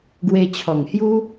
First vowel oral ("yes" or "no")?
yes